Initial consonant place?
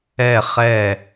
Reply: uvular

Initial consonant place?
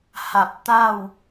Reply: glottal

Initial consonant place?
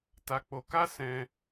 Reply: alveolar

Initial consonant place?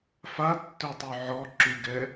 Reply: labial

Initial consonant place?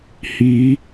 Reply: glottal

